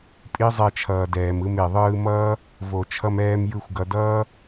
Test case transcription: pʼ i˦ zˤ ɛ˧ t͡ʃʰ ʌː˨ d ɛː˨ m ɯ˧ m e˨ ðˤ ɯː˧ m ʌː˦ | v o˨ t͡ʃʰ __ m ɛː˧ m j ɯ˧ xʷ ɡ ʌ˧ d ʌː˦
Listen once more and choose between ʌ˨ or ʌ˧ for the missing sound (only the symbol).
ʌ˧